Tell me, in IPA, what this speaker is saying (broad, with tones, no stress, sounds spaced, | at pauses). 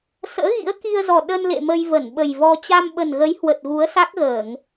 s ə̰ː˧˥ ɣ ḭ˧˥ ə̯ k i˧ ə̯ z ɔ˨˩ ɗ ə˧ n l ḛ˧˨ m ə˧ j v ə˧˩ n ɓ ə˨˩ j v ɔ˧ t͡ɕ a˧ m ɓ ə˨˩ n ɣ ə˨˦ j h w ə˨˩ t̚ ɣ u˨˦ ə̯ s a˦˥ k̚ ɣ əː˧˩˨ ŋ